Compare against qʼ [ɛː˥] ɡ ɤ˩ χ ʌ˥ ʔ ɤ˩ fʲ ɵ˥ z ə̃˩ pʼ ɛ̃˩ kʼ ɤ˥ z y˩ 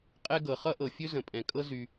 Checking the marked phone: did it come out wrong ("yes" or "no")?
yes